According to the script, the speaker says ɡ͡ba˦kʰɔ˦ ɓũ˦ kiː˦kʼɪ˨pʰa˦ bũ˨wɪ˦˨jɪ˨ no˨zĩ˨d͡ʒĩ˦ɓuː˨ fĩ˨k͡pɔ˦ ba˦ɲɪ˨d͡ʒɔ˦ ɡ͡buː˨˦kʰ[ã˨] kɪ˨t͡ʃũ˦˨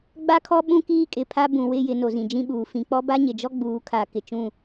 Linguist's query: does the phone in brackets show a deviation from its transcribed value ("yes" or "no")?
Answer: yes